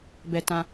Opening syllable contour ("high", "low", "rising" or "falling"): low